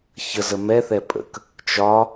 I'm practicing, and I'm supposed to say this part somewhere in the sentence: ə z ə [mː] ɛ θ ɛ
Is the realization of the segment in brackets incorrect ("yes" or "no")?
yes